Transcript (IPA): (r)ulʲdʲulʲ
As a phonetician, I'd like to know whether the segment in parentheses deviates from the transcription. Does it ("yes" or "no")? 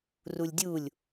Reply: no